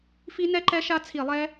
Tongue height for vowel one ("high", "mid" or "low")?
high